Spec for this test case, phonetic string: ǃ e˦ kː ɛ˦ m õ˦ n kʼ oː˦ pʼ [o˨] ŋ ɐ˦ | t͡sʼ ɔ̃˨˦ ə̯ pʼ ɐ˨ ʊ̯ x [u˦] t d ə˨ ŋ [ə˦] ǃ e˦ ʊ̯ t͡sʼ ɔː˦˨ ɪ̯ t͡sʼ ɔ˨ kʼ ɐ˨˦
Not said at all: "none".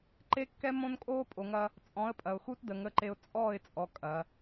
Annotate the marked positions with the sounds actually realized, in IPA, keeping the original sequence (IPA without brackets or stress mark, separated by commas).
o˨, u˦, ə˦